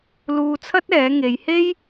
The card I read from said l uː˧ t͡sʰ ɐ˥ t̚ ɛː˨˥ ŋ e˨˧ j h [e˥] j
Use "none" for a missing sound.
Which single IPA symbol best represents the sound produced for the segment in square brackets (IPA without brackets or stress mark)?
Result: e˥